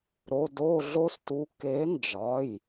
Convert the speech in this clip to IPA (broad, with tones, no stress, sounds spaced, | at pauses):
ɾ o˩˧˩ d o˦˨ ɮ o˦ s t u˨˦ k e˨˦ n d͡ʒ ɒ˩˧˩ j